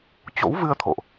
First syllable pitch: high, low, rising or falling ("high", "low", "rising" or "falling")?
rising